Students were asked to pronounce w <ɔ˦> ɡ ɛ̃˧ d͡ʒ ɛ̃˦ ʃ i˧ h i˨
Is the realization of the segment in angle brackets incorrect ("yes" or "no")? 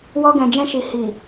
no